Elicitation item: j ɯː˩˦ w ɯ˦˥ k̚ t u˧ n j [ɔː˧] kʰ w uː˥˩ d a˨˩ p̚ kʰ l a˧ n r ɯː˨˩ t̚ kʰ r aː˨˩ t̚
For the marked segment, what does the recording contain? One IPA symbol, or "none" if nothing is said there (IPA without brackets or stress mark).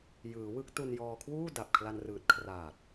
ɔː˧